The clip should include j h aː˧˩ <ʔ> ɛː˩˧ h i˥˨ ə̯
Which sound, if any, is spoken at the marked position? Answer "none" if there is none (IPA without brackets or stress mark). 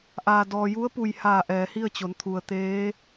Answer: ʔ